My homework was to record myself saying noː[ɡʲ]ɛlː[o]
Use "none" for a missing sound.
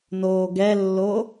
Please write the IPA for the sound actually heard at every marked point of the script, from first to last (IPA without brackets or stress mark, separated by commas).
ɡ, o